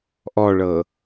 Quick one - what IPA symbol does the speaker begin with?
ʔ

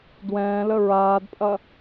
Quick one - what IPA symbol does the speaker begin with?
d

